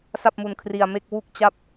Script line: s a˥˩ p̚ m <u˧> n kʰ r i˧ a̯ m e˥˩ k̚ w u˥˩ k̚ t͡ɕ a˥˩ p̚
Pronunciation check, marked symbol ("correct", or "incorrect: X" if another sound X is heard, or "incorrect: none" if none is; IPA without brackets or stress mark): correct